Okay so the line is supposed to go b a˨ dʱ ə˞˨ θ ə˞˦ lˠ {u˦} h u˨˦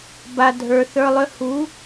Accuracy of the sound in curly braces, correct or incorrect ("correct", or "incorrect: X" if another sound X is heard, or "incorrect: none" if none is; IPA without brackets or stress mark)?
incorrect: ʏ˦